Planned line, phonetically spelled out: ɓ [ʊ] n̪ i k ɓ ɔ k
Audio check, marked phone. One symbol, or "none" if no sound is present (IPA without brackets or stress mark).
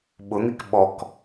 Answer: ʊ